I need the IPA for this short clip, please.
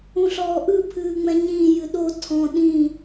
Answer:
ũɬɔːʔɯ pʰɨːŋ͡mɛ̃ɲĩː jɨɗo tʰɔ̃ ɗĩ

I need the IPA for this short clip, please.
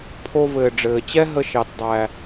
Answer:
pʰo˧vɘː˨ ɖ͡ʐɘː˨t͡ɕɛ˦ɦə˧ʃɑ˨t dˤæ˨

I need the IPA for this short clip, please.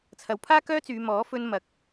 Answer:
t͡sʰɐ˨˧wpʰaː˥kœː˥t͡syː˨˧ mɔː˨˥fɵ˧n mɐ˨k̚

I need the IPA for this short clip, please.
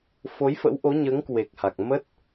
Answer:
fo˨˦jfə̰˧˥wʔo˨˦ɲəː˨˦ŋ kwe˨˩k̚ha˨˩k̚ mə˦˥t̚

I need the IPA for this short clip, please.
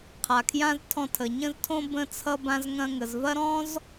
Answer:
qʰa˩kʰjã˧z tʰɔ̃˧tʰə˩ ɲə̃˧ztʰõ˧ bə̃˧t͡sʰʌ˧bã˧z ŋɐ̃˧ŋə˩zvɐ˥ ɾɔ̃˥z

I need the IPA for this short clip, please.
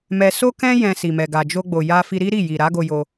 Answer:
mɛ˧ so˦kɛ̃˦ jɛ̃˧si˨mɛ˨ ɡa˨d͡ʒo˧ɡ͡bo˨ ja˧fi˧ ɾi˦ɾi˦˨ji˨ ɾa˨˦ɡo˧jo˧

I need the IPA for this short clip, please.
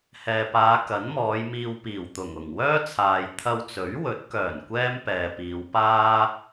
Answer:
hɛː˨paː˨˧ kɐ˨˥nmɔː˨˧jmiː˧w piː˨˩wt̪ʊ˨˩ŋʊ˨˩ŋ wœː˥t͡sʰaː˨j t̪ʰɐ˧wt͡sɵ˨˥ɥwɵ˨˥t̚kœː˨˩n kʷɛː˥mpɛː˨piː˨˧wpaː˥

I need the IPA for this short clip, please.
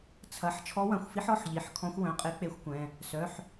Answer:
t͡sʰɐ˩˧˩ħ t͡ʃʰɔ˧˥wɐ̃˩˧˩xʷfi˧˥ħ ɔ˩˧˩ħʎi˩˧˩ħkʰɔ̃˧˥xʷ wœ̃˩˧˩qʼe˧˥ k͡pe˧˥xʷkʷɛ̃˩˧˩ | sœ˩˧˩ħ

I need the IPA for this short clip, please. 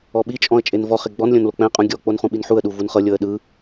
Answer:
ɔɓit͡ʃʼɔ̃ə̯ t͡ʃʼenvɔχe ɡ͡bɔnlʲõn lok͡pɛ̃qʼũ ɡʲɔk͡pon χũɓinħuə̯ɗu vunχɤlʲɤə̯ ɗɯ

